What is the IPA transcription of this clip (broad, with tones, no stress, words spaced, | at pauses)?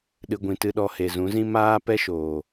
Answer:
ɗɨ˨ɡʷĩ˨tɨ˧ɗɔ˧ he˨zũ˨˦zĩ˦ maː˦pɛ˦ʃoː˨